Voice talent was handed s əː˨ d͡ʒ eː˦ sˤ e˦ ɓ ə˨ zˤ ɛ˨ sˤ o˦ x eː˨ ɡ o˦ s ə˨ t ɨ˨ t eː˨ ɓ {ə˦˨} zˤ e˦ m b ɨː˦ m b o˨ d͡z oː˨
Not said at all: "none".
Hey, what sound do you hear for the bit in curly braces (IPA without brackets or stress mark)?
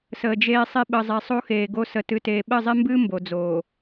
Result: ə˦˨